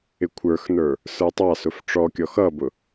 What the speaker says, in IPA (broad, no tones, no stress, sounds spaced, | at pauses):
ɪ kʷʰ ə˞ x n ə˞ | s ə˞ tˤ ɑ s ʊ f ʈ͡ʂ ɔ kʲ ɔ x ʌ b ʊ